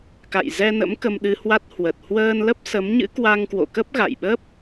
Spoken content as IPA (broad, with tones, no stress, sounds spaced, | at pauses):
k a̰˧˨ j z ɛ˧ n ə̰˧˥ m k ə˧ m ɗ ɨ˧ h w a˦˥ t̚ h w ə˨˩ t̚ h w əː˧ n l ə˦˥ p̚ s ə˨˦ m ɲ ɨ̰˧˥ k w a˧ ŋ k w o̰˧˨ k ə˦˥ p̚ ɣ a̰˧˨ j ɓ ə˦˥ p̚